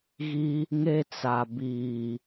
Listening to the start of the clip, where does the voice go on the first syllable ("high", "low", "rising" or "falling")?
high